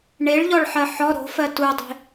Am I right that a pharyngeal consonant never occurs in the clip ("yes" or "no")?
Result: no